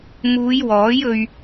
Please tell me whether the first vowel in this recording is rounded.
yes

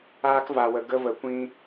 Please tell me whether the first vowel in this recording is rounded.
no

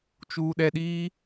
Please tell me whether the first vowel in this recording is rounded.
yes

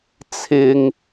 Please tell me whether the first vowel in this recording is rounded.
no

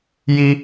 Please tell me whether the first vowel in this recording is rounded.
no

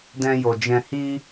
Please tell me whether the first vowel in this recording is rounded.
no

